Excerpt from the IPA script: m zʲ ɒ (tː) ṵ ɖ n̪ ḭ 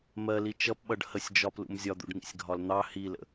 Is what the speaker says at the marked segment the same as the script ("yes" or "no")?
no